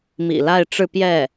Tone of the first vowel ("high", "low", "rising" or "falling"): low